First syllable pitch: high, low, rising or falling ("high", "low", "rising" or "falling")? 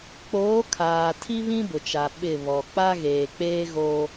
rising